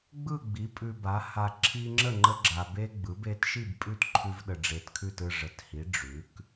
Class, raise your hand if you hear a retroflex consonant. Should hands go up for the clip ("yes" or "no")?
yes